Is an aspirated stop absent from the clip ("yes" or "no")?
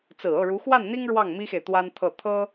no